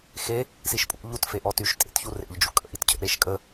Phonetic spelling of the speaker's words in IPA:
xe | siʃpʼṵ ʎut feʔɔtyʃ tʼḛtçurḛʎ d͡ʒṵkʼə̰ʔitcʰə̰ ɾeʃkʼə

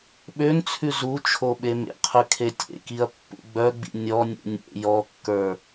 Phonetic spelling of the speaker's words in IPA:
ɓønt͡sʰʉ zu t͡ʃʰoɓemḛqʰʉ kʰetʲḛkiɐ̯ pːṵɡ͡bœɡ͡bḭ nʲɔnʲṵ nʲḛ jɔkːə˞

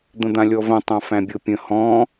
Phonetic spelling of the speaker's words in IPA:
d̪ə̃d̪ãlʲɔvə̃ tˤãfæ̃bʲɤpʲə̃ hɔ̃

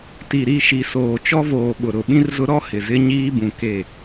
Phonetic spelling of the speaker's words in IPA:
ti˨ɾi˦˨ʃi˨ soː˨t͡ʃɔ˦voː˨ ɓʊ˨ɾʊ˨˦ ɓĩ˦rzʊ˦ ɾɔ˦ hɪ˨zɪ˦ ɲiː˦bũ˨ ke˦˨

